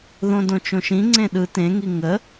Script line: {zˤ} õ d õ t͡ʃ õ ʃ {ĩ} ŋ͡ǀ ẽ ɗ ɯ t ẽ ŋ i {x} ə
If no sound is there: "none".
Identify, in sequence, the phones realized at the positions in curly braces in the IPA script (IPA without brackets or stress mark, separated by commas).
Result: ð, ĩ, ŋ